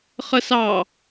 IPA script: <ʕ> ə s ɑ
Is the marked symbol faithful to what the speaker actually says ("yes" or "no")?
no